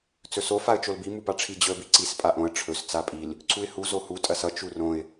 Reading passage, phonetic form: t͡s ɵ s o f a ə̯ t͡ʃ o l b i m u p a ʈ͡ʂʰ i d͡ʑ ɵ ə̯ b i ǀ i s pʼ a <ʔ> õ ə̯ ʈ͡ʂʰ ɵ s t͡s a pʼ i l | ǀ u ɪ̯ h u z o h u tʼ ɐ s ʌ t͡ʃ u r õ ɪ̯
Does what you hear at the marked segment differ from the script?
no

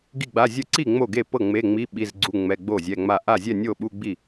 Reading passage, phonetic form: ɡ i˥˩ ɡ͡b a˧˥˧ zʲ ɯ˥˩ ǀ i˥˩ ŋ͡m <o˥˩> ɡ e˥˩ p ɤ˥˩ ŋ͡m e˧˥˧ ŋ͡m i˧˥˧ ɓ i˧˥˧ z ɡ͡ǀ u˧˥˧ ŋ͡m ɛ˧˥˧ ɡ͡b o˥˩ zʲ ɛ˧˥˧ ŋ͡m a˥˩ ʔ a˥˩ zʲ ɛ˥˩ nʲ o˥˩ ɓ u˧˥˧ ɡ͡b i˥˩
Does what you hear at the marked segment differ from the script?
no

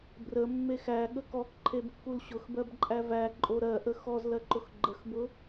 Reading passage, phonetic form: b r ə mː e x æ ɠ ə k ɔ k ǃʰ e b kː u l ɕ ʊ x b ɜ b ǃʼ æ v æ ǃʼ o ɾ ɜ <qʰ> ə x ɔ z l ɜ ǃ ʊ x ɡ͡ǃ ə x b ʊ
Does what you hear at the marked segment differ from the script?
yes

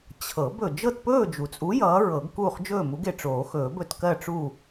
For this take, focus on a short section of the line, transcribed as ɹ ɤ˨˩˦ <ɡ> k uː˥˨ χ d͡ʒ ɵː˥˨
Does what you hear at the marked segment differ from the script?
no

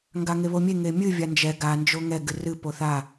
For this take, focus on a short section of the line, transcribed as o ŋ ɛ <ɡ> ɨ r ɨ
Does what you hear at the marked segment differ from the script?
no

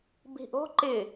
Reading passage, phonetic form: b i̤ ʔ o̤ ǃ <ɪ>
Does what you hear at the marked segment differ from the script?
no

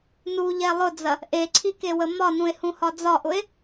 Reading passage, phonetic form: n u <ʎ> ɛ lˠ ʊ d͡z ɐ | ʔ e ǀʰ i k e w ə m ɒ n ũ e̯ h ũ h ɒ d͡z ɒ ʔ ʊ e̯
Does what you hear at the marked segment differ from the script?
no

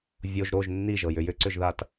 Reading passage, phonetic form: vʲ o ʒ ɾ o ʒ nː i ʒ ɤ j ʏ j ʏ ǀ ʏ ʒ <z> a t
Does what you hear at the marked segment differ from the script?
yes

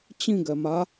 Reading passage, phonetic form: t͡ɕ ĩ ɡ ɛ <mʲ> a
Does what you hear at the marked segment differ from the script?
yes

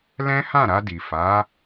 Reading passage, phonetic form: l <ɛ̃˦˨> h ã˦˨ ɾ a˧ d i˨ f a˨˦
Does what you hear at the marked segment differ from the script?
yes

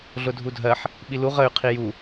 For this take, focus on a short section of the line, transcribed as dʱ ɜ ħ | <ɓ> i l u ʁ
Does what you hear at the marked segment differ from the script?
no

